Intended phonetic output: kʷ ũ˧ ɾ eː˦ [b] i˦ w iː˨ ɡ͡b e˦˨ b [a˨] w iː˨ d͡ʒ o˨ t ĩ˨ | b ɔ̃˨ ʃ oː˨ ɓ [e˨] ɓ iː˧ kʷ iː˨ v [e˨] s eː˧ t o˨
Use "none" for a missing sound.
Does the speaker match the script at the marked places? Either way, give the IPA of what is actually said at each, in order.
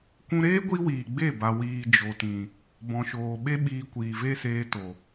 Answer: ɡʷ, a˨, e˦, e˦

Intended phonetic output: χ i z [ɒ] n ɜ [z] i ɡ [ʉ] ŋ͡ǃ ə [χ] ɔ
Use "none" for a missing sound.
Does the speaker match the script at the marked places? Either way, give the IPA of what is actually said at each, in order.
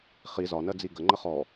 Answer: ɒ, d͡z, ə, χ

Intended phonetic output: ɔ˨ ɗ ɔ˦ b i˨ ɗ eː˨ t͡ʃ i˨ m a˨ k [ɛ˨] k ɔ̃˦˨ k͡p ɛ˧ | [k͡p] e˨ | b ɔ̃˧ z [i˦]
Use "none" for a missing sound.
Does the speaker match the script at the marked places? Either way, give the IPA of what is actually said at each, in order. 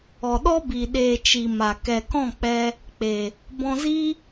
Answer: ɛ˨, k͡p, i˦

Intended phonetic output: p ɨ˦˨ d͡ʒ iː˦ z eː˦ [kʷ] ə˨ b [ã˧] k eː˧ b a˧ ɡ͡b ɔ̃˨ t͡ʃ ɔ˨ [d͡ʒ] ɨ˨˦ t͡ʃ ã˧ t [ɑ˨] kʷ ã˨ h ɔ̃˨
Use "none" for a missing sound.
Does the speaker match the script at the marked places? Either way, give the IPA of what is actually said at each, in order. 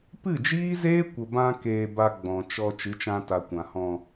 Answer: kʷ, ã˧, t͡ʃ, a˨

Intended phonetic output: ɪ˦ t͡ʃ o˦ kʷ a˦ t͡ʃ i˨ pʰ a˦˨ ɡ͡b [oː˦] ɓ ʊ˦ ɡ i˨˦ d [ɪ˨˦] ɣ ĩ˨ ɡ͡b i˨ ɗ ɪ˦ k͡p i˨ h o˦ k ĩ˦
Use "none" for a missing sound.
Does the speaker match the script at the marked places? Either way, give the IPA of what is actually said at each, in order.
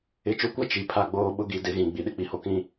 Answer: oː˦, ɪ˨˦

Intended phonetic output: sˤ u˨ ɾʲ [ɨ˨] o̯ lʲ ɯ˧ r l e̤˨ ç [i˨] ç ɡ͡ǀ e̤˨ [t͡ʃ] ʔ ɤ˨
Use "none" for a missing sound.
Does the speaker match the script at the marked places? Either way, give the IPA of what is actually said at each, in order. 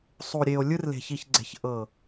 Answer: e˨, i˨, ç

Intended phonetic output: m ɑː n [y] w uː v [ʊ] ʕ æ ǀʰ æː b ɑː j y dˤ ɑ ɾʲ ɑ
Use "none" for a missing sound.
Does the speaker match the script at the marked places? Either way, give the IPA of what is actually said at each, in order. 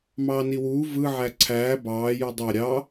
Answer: i, ɯ

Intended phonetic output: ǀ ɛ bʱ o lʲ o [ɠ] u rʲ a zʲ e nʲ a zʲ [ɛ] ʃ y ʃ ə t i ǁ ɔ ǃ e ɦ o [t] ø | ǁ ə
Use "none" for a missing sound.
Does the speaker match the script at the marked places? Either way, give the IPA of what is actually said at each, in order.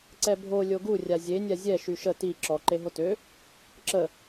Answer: ɡ, ɛ, t

